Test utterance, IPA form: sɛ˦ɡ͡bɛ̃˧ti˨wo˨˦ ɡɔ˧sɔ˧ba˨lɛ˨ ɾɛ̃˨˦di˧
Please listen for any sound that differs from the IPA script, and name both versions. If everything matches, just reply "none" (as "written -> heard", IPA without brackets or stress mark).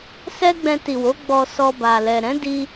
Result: ɡ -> ɡ͡b